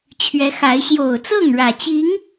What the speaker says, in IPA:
t͡ɕʰ ɥ ɛ˨˦ x a˨˦ ɪ̯ ɕ j o˨˩ ʊ̯ t͡s ɤ˥˨ ŋ ɻ ä˨˩ t͡ɕ i˨˦ ŋ

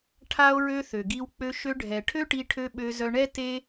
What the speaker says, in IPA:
ʈʰ a˦ o̯ ɹ ø˦ θ ø˨ ɡ i˧ w k͡p ø˧ ʃ ø˧ ɖʱ ɛ˨ ʈʰ ø˦ ʈ i˧ ʈʰ ø˧ ɓ ø˧ z œ˧ ɳ ɛ˦ t e˦

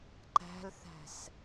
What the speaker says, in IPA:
ǃ æ̤ l θ æ̤ s

